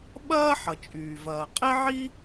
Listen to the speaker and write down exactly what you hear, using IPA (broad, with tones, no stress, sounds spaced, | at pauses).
ɓ ɐː˥ ħ ʌ˩ t͡ʃʼ yː˩ v ɐː˩ qʼ e˥ ʕ i˥